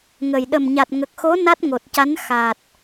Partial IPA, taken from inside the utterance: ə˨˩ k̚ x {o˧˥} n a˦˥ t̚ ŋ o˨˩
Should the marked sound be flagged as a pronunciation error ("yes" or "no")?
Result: no